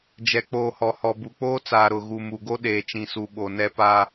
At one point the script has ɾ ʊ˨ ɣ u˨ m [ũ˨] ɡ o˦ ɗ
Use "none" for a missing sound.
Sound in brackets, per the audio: u˨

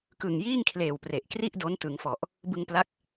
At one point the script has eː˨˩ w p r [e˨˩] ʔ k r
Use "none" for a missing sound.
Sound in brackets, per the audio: e˨˩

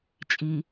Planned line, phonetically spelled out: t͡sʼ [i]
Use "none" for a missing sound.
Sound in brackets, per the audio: i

